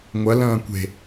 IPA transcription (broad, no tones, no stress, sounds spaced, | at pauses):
ŋʷ ɐ l ɐ̃ː kʷ e̤